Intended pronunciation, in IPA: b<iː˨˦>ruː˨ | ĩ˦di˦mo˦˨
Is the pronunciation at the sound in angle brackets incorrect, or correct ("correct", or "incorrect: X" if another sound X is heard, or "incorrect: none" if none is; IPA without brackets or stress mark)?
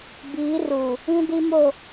correct